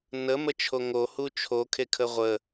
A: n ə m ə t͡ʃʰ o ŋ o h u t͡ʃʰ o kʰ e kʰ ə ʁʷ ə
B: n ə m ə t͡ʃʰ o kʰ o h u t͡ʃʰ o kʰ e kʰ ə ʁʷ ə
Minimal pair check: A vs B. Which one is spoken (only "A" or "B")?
A